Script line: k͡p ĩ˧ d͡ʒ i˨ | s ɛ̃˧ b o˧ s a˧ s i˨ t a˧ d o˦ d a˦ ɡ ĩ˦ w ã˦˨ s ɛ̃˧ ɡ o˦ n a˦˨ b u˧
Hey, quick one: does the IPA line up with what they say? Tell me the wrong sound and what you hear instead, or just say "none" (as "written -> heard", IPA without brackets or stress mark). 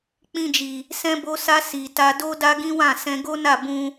u˧ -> ũ˧